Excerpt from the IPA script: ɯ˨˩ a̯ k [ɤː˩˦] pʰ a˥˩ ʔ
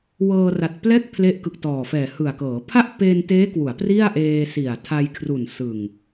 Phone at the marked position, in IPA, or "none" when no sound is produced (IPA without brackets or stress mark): ɤː˩˦